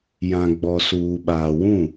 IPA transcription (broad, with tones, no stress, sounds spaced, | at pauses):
j ã˨ ɡ͡b ɔ˨ s uː˨ ɓ aː˨ w ũ˦˨